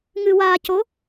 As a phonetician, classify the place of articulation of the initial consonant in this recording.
velar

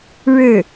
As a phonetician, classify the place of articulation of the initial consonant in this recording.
retroflex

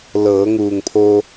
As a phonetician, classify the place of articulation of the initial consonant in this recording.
alveolar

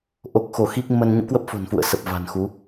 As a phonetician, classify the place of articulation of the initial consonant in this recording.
glottal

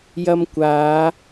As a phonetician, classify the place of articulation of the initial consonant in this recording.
palatal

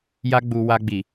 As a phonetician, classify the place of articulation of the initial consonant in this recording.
palatal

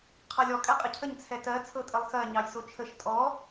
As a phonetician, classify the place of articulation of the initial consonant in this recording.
uvular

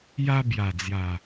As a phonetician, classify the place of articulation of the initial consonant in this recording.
palatal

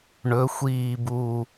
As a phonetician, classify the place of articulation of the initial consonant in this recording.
retroflex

